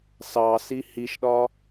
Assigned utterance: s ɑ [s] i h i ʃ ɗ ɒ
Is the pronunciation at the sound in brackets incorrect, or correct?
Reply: correct